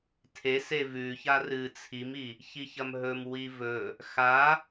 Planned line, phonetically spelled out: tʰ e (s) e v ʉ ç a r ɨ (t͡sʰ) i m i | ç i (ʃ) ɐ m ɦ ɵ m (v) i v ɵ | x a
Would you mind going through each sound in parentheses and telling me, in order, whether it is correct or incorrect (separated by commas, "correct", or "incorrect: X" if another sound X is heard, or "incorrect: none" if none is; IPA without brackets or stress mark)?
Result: correct, correct, incorrect: ç, incorrect: w